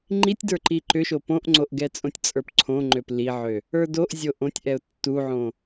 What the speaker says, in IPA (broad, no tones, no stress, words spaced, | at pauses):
ŋ͡ǃitʲdə˞ ǃiǃʏʃo põʔŋ͡ǀoʔ ɡɛt͡sʼõtʲt͡sʼə˞p ǀʰõŋ͡ǃøp liʕø | ə˞doʔzʲo ʔõtʲʔɛʊ̯ tːuʕõ